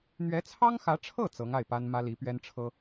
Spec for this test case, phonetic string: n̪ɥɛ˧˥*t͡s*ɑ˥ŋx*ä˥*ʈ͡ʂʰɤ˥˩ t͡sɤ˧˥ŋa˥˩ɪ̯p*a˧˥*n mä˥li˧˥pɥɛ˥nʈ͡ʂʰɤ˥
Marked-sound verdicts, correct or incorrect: incorrect: t͡sʰ, incorrect: ä˧˥, incorrect: a˥

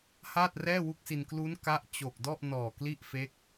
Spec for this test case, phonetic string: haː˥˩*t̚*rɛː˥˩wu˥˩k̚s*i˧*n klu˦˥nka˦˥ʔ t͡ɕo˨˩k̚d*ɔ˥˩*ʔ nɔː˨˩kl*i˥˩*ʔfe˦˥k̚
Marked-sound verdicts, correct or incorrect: correct, correct, correct, correct

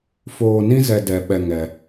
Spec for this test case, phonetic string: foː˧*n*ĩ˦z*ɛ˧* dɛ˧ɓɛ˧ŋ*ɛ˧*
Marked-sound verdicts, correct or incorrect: correct, correct, correct

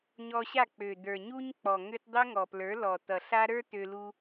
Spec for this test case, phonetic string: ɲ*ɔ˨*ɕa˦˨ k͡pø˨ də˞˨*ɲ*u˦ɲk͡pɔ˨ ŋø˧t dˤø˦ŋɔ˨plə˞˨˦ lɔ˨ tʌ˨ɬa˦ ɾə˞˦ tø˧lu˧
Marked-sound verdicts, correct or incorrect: incorrect: ɔ˧, correct

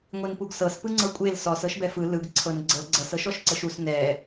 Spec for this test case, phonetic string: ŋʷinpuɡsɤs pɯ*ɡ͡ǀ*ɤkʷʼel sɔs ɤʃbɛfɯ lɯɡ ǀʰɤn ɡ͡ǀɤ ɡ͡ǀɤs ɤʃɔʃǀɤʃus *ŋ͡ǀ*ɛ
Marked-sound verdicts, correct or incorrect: incorrect: ŋ͡ǀ, incorrect: n

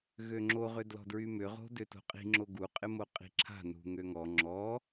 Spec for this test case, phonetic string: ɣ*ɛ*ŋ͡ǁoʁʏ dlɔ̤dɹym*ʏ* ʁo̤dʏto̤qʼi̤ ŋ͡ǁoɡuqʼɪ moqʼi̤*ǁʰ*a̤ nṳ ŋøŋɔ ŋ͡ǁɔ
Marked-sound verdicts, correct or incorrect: incorrect: ø, correct, correct

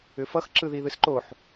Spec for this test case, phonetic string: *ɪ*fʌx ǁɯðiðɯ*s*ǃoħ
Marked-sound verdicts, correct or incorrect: incorrect: ʏ, correct

